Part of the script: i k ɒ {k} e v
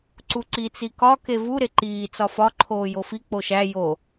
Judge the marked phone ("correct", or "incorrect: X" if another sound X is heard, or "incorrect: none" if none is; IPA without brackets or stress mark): correct